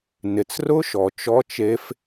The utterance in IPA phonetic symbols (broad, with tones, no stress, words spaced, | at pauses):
nɪ˩t͡srʊ˦˥ʃɔ˩ t͡ʃɔ˦˥t͡ʃe˦˥f